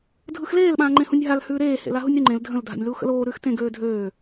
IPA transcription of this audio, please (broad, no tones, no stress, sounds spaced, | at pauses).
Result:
dʱ ɯ x l eː l ɓ ãː ŋ͡ǃ ẽ h ũ nʲ ɦ a l h ʉː ɾ eː h ḛ l a ɦ u nʲ ɾ y ŋ͡ǃ ẽ l dʱ ə̃ l dʱ a̰ nʲ l uː x ə̰ l oː ɾ ʉː x t ẽ ɡ øː dʱ øː